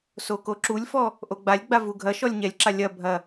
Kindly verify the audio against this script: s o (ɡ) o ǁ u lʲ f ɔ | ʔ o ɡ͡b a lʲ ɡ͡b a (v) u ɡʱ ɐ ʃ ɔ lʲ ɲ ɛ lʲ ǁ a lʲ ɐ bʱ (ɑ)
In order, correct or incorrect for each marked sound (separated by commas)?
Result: incorrect, correct, incorrect